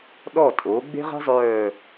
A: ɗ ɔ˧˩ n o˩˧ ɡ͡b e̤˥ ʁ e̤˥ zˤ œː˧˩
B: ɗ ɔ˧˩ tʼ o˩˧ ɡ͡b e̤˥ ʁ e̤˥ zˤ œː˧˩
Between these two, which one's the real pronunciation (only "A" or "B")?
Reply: B